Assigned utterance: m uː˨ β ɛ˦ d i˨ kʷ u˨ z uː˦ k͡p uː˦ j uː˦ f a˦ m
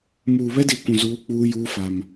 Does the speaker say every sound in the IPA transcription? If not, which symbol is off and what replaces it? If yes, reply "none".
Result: u˨ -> ũ˨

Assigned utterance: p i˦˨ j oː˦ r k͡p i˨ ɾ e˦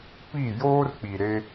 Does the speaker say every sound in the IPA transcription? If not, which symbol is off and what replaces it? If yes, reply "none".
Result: none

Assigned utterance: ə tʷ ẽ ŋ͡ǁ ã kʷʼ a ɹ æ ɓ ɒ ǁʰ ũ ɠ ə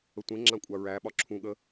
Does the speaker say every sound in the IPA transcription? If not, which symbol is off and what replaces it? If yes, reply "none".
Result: none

